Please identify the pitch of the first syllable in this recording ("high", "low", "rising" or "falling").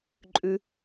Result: low